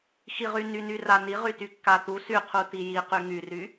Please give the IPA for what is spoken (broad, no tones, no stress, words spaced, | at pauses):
xiʁynyny raniʁy tykːat̪u syqʰu tiji qyŋyry